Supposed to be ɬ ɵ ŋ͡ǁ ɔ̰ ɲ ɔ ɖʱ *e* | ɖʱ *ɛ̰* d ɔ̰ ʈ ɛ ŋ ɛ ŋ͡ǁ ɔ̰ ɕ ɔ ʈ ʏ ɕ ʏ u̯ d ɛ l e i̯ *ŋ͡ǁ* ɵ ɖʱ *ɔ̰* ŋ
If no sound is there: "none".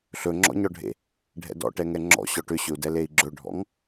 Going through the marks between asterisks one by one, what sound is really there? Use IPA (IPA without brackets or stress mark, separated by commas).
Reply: ḛ, ɛ̰, ɡ͡ǁ, ɔ̰